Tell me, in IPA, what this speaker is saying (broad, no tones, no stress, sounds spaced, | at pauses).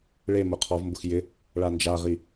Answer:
ɭ e m ʊ qʰ ɔ v m b ʊ x j ɪ | ɭ a n d͡ʒ a ʁ i